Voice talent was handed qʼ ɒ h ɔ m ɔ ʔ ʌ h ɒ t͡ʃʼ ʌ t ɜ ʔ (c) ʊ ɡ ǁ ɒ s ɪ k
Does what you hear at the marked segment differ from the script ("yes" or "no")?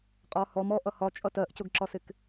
no